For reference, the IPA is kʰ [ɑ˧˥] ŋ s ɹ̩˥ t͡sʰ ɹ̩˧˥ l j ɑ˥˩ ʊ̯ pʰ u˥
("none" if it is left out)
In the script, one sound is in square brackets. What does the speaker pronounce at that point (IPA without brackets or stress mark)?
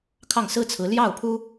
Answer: ɑ˥˩